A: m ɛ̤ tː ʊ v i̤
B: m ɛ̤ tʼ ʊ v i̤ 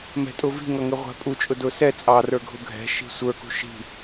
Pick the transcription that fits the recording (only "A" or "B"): B